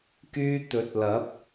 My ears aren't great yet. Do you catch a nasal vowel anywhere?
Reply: no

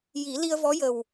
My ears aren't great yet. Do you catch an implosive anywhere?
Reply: no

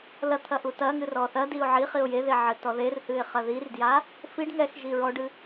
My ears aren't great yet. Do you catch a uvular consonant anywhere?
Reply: yes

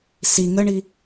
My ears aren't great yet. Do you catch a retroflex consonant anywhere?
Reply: yes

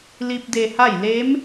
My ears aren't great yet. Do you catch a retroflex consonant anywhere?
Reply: no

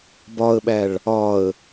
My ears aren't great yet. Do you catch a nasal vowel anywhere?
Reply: no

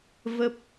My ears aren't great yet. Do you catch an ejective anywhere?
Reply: no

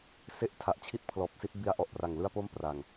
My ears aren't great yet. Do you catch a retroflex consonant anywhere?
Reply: no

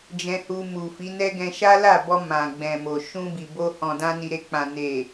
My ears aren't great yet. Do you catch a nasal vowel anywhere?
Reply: yes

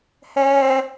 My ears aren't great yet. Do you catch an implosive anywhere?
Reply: no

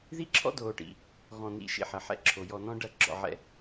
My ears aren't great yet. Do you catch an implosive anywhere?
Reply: no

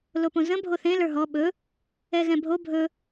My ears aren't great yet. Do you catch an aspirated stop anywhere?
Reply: no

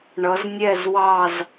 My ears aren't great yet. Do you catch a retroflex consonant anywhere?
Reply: yes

